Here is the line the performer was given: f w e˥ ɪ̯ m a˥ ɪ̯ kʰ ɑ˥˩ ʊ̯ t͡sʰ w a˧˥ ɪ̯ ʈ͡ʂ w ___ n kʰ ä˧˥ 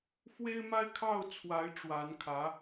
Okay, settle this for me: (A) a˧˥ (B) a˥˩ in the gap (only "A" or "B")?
A